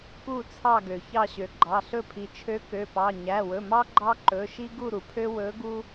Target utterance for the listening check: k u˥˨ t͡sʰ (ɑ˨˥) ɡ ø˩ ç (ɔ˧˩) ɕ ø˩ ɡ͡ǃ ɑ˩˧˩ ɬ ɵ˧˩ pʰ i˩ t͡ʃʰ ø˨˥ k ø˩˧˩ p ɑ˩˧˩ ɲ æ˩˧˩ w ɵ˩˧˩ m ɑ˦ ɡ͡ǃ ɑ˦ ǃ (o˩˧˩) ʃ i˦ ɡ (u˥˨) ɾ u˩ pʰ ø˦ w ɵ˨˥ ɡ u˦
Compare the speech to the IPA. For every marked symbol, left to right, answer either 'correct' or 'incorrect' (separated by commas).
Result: incorrect, incorrect, incorrect, correct